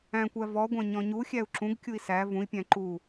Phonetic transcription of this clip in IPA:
æ̃ kʷ æ v ɔ ɡʷ æ̃ ɲ ɔ̃ ɲ u xʲ æ u̯ ǁ ũ ɡ kʲ u i̯ s æ v ũ i̯ pʲ æ̃ ǃ u

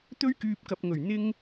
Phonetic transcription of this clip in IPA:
t̪ ɵ˥ ɥ k yː˧ p̚ k ɐ˨ p̚ ŋ ɵ˨˩ ɥ n̪ ɪ˥ ŋ

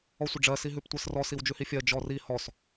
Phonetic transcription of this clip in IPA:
ɔ sʷ ə ɖ͡ʐ ɜ s i ɦ ʉ p tʷ ɜ s r ɔ s i w d͡ʒ ʉ h i fʲ ɜ d͡ʒ ɔ r i h ɔ s

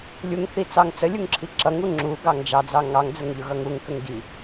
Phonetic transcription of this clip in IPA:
lʲ u ŋ θ i t͡s ɑ ŋ t͡s ə lʲ u ŋ ǁʰ i ǁ ʌ ŋ u ŋ͡ǁ u ɡ ɑ ŋ d͡ʒ ɑ d͡z ɑ ŋ ɑ ŋ d͡z ə ŋ ʎ ʊ ɣ ʌ ŋ u ŋ k ə ŋ ɡ i

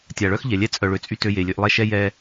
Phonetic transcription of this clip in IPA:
tʲ a˨ ɭ œ˦ x ʎ ɛ˨ lʲ ɛ˦ t͡sʼ œ˨ ɭ ø˨ t͡sʼ y˦ t ø˦ j e˨ lʲ ø˦ ʔ lˠ ɛ˦ ʃ ɛ˦ j ɛ˦

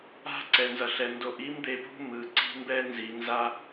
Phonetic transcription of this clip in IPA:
a̤˦ ǀ ɛ˨ n z ʌ˨ ɬ ɛ˨ n d o˨ ʔ i˦ m d̪ e˨ p ṳ˦ m ɯ˨ ǀ i̤˦ m b ɛ˦ n z i˨ n z a˦

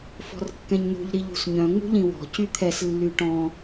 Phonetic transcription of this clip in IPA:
f ɔ̤ r kː ɛ̃ ɲ n ṳ ʎ ɾ i ʎ ṳ s ɲ œ̃ ŋ͡m ṳ ʎ ĩ w ɔ̤ c y t̪ʰ ɛ s lː y ʈ ɔ̃

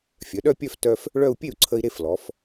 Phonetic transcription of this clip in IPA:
fʲ œ˩˧ ɗ œ˥˧ pʲ œ˥˧ f t œ˧ f | ɭ œ˥˧ u̯ pʲ e˥˩ u̯ ǀʰ ə˧ i̯ ɾ e˥˧ f l ɔ˩˧ f

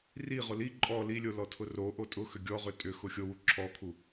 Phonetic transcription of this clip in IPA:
r i ʁ ʊ l i ǃʼ ɔ l i lʲ o l ɔ tʰ ʊ r o ʔ o tʼ ʊ x ʏ ɡʲ ɔ ʁ ʏ tʼ ʏ x ʊ xʲ o w u ǁʰ ɔ kʰ u

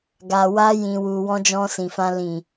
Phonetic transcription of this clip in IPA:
ɡ a˨ w a˧ j ĩ˨ w u˨ w ɔ̃˧ d͡ʒ ɔ̃˧ s ĩ˨ f ã˧ l ĩ˨

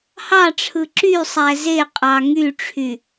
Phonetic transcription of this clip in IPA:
h ɑ ʈ͡ʂʰ ɯ ǁ y sˤ æ z e qʼ ɑ ŋ y ʈ͡ʂʰ y

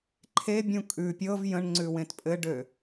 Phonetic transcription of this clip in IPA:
ǃʰ e bʲ ũ kʼ ʉ pʲ ɤ v j ə̃ ɳ ŋ͡ǀ ʉ w ẽ t pʼ ɘ ɖ ø

